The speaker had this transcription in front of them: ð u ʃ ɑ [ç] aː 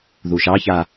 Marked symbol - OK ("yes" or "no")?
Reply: yes